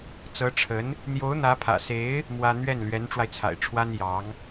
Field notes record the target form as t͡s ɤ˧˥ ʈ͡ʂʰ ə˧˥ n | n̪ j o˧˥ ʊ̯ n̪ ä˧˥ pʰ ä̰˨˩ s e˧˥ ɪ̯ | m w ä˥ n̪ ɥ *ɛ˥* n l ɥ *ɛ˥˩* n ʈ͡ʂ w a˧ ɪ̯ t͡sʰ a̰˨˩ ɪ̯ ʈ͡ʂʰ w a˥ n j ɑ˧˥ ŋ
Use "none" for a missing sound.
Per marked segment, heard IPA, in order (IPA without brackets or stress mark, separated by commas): ɛ˥˩, ɛ˧˥